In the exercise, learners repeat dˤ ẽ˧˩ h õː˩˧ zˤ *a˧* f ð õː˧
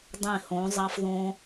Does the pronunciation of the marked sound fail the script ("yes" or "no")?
yes